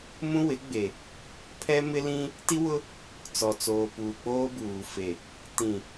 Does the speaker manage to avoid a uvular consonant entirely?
yes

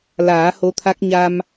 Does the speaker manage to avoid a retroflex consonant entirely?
yes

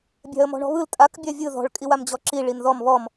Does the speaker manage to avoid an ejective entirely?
no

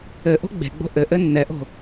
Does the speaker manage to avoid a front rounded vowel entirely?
yes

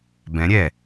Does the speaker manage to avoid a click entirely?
yes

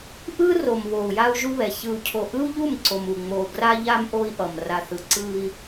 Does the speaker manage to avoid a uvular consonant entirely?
yes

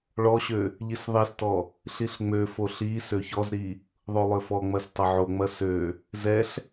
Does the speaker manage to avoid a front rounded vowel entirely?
no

